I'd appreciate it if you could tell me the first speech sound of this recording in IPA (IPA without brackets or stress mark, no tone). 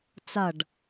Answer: t͡s